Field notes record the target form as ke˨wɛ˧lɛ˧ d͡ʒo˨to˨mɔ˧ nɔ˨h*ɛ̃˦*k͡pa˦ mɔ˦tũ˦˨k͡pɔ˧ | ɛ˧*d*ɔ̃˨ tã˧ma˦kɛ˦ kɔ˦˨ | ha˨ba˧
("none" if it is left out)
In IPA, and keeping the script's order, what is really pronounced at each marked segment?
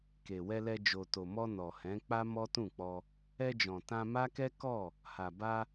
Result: ɛ̃˨˦, d͡ʒ

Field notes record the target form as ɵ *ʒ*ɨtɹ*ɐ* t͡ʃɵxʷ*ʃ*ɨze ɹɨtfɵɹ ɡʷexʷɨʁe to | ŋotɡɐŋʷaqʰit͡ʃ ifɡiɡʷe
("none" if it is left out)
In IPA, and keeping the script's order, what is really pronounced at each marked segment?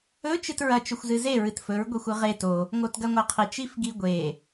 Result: t͡ʃ, ɐ, z

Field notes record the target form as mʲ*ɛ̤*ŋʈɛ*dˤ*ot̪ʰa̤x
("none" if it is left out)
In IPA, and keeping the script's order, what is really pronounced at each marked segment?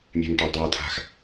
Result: ɛ̤, dˤ

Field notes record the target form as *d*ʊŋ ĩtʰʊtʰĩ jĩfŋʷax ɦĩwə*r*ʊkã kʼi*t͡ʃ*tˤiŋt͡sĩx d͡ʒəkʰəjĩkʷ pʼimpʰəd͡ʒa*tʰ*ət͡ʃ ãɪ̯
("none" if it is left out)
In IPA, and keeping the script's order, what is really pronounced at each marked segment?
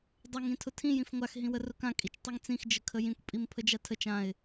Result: dˤ, r, t͡ʃ, tʰ

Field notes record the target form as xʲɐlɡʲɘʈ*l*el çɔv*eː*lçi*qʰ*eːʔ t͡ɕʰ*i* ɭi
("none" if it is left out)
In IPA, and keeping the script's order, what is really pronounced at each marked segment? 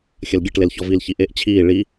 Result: l, iː, ʔ, iː

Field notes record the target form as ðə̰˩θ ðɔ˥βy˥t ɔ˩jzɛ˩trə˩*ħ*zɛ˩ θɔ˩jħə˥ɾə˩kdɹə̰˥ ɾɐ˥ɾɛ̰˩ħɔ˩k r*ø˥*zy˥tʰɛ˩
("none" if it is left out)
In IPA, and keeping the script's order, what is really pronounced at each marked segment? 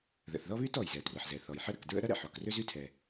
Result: ħ, ø˥

